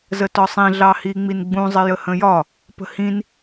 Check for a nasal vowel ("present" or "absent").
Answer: present